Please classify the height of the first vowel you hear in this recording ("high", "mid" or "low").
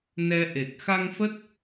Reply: mid